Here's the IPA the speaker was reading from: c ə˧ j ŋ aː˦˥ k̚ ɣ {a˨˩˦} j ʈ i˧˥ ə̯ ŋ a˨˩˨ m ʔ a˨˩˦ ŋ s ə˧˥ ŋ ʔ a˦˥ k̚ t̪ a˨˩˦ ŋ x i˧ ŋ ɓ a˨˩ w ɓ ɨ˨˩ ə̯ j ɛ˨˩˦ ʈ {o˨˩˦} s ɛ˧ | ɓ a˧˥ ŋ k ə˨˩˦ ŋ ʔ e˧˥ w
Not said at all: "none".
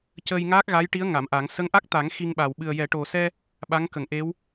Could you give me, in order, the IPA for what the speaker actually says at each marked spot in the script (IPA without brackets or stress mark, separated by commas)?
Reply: a˧˥, o˨˩